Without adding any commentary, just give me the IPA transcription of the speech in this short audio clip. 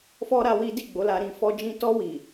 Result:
f ɔ˦ ɾ a˦ w i˦ d i˦˨ ɡ͡b o˨˦ l a˧ ɾ ĩ˧ f ɔ˦ d͡ʒ ĩ˦ t ɔ˧ w i˨

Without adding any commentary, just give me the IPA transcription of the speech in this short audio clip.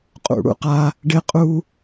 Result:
qʼ ṵ˩ ɽ ṵ˧ q a˧ | ɖ ɪ˥ qʼ u˥

